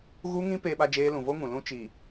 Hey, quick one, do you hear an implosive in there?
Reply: yes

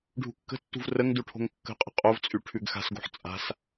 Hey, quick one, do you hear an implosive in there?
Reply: no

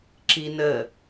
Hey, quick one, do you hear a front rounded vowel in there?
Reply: no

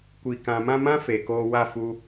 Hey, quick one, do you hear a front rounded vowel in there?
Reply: no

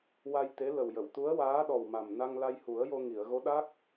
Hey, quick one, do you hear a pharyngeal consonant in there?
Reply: no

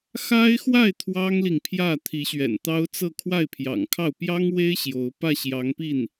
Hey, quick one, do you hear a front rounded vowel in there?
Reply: no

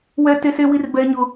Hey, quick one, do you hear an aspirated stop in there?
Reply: no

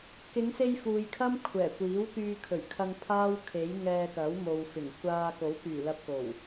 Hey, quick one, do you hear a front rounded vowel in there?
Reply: yes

